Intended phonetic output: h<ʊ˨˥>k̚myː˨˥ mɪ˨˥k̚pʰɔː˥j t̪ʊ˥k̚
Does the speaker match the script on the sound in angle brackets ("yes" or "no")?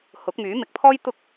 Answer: yes